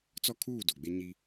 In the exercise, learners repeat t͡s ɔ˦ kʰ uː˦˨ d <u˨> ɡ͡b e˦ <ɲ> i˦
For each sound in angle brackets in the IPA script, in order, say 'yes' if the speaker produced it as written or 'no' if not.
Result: no, yes

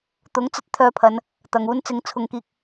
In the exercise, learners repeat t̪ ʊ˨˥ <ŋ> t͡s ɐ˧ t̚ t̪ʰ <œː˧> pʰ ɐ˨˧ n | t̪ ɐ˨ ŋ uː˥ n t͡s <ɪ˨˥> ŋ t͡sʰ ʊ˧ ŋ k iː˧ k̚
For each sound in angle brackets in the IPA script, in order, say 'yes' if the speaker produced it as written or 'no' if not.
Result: yes, yes, no

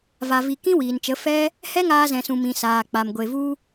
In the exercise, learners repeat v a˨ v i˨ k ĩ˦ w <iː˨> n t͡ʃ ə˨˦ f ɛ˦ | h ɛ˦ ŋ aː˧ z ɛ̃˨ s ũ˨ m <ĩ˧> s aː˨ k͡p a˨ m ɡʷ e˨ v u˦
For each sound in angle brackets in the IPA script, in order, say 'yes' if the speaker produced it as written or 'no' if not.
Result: yes, no

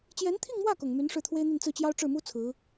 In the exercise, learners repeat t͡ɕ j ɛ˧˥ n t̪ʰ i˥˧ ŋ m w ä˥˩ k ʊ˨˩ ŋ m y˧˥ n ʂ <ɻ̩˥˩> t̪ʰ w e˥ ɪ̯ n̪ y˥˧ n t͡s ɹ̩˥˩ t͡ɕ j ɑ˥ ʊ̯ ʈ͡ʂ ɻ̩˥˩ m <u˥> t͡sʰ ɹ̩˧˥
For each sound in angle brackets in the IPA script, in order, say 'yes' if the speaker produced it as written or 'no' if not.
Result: yes, yes

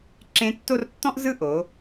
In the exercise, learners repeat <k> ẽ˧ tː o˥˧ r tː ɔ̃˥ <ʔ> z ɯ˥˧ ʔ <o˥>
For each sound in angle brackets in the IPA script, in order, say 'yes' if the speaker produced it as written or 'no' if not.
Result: no, yes, no

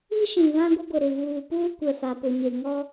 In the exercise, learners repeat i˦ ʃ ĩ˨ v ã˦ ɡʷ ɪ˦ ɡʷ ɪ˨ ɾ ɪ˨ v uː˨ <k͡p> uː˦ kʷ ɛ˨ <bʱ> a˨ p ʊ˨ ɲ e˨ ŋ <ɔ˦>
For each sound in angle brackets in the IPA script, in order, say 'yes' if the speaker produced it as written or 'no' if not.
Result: no, no, yes

